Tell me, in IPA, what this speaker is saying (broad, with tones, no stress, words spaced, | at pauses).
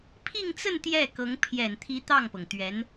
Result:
pʰi˥˧ŋt͡sə˥˧n t̪jɛ˥˩kɤ˧˥ŋ pʰjɛ˨˩nt̪ʰi˧˥ t̪ɑ˥˩ŋpɤ˩ŋt̪ɥɛ˧˥n